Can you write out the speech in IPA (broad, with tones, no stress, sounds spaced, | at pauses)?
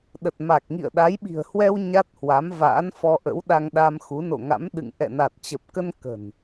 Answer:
ɗ ə˨˩ t̚ m a˨˩ k̚ ŋ ḭ˧˨ ə̯ ɗ a˨˦ j ɓ i̤˨˩ ə̯ h w ɛ˧ w ɲ a˦˥ t̚ h w a˨˦ m v a̰ː˧˥ n f ɔ˧ ʔ ə̰˧˥ w ɗ a˧ ŋ ɗ a˧ m x u˨˦ n o̰˧˨ ŋ a̰˧˥ m ɗ ɨ̰˧˨ ŋ ʔ ɛ̰˧˨ n a˨˩ t̚ t͡ɕ ə˨˩ p̚ k ə˧ n k ə̤˨˩ n